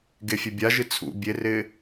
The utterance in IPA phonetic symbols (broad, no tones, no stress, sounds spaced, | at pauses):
ɡ e fʲ e bʲ a ʒ ɨ t͡sʰ ṵ bʲ e r ɪː